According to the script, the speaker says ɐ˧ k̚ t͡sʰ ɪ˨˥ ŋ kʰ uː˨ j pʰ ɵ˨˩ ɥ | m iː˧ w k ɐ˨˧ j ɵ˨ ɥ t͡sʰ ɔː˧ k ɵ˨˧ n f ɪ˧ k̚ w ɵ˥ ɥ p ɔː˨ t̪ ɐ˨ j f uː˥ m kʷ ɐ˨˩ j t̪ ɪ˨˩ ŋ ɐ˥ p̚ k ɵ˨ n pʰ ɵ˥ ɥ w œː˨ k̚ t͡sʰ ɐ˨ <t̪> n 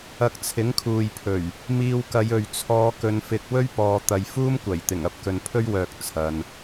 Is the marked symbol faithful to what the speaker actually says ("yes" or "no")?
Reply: no